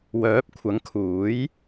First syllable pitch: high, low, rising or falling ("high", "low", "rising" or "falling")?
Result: rising